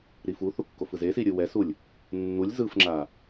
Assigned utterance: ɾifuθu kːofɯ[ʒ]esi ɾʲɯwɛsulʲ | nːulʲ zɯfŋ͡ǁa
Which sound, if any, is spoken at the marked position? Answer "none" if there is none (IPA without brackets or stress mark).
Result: z